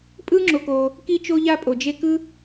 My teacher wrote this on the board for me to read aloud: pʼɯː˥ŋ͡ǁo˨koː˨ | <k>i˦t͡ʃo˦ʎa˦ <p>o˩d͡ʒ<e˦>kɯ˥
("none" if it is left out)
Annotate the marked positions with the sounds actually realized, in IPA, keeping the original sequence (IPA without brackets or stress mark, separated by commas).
k, pʼ, e˦